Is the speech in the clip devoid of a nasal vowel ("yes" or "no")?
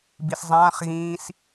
no